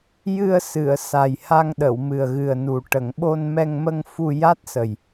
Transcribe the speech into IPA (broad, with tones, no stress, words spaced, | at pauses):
jɨ˧ə̯ sɨ˨˩˨ə̯sa˨˩j ha˧ŋɗə˨˩˨wmɨ˨˩ə̯ ɣɨ˨˩ə̯nu˨˩ ʈə˨˩˨ŋ ɓo˧nmɛ˧ŋmə˧ŋ fu˧ ja˦˥t̚sə˨˩j